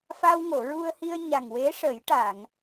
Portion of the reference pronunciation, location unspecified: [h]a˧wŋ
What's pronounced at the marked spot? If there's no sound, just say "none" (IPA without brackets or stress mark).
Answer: f